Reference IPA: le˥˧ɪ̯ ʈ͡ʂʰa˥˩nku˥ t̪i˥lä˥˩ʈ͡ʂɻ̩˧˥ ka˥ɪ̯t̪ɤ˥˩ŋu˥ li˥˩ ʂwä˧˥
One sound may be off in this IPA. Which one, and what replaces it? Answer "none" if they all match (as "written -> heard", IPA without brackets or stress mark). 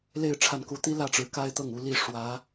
none